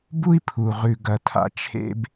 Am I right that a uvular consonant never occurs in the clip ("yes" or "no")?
no